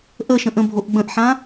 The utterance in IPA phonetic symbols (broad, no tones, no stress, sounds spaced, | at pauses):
ʔ ə ʃ ə̃ ʔ ə̃ bʱ o ʔ ɡ͡b ə̃ ʔ ħ ã